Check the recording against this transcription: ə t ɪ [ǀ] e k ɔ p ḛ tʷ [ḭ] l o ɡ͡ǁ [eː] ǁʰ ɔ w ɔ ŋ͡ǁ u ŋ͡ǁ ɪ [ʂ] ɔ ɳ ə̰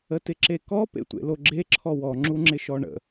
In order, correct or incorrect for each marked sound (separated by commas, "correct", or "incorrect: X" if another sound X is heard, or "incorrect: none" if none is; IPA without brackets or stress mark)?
incorrect: ǁ, incorrect: ḛ, incorrect: e, incorrect: ʃ